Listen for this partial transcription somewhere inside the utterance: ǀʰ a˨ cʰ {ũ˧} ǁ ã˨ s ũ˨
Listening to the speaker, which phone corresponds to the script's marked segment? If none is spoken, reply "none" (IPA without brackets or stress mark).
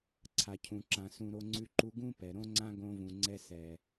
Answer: ũ˨